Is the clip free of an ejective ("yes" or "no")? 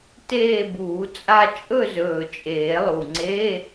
no